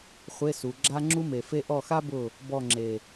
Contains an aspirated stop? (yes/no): no